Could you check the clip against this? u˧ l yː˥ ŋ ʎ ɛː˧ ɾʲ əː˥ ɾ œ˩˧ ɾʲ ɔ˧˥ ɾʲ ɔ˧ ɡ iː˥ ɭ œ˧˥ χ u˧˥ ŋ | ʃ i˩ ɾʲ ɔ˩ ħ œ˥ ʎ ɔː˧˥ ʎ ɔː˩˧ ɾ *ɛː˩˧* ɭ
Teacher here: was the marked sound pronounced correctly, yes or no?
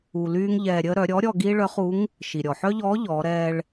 no